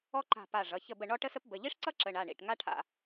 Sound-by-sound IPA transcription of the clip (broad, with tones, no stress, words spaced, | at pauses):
ɔ˥ǃa̤˦˨pa˦˨ ʐʌ˩˧˩çə˦˨bə˦˨ ɳɔ˥ʈə˥sə˥p bə˩˧˩ʎi˥ʂǀʌ˥ ǁə˩˧˩ɳa˩˧˩ɳḭ˩˧˩ʈ ŋa˥ʈʰa̰˦˨